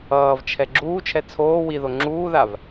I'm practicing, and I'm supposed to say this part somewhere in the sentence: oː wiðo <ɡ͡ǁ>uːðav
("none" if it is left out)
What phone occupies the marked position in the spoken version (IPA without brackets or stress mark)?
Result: ŋ͡ǁ